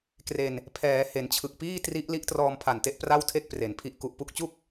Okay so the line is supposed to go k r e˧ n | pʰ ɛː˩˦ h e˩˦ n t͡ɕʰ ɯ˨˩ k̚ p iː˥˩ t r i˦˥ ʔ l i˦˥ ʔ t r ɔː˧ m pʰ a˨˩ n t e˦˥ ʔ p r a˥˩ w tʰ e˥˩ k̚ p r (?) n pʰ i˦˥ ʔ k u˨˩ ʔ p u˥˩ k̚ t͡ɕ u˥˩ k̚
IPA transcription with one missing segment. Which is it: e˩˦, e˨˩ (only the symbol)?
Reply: e˩˦